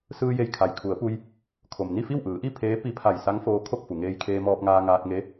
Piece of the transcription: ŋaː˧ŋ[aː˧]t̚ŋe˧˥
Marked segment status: correct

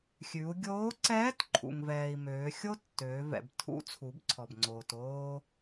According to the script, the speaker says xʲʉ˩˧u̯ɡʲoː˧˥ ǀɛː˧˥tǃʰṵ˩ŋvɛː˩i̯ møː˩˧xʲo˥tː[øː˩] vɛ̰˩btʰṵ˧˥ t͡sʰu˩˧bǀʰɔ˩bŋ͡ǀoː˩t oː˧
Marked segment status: incorrect: øː˩˧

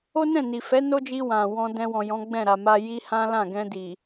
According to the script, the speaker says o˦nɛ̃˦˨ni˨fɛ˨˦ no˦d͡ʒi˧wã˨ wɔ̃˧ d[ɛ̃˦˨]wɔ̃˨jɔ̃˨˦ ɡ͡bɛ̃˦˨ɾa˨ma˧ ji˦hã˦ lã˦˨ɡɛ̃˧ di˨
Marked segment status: incorrect: ɛ̃˧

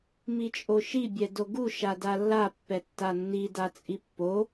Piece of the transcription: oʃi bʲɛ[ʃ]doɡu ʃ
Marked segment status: incorrect: none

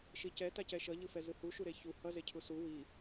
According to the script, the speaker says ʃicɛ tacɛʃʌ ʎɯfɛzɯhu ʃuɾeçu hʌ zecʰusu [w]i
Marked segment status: correct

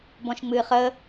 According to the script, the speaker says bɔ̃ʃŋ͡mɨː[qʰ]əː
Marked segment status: incorrect: χ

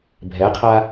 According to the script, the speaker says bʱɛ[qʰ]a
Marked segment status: correct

